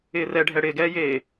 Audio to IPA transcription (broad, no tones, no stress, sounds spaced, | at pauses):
ɪː r ɛ ɖʱ ɛ ɽ ɪː ɡ ɛː j eː